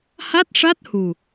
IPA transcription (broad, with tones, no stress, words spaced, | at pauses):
ha˦˥t̚ʂa˦˥t̚ hu˨˩